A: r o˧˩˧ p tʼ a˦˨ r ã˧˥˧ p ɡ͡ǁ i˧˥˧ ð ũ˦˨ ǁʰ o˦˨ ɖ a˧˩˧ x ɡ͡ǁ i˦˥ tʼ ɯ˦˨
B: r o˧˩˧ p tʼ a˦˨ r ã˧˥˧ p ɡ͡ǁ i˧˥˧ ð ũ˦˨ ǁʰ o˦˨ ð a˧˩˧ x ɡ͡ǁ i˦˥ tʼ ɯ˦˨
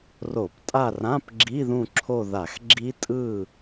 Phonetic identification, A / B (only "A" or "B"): B